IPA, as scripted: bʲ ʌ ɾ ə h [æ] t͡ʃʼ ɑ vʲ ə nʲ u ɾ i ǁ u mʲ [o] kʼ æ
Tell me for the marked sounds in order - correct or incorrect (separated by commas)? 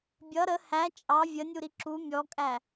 correct, incorrect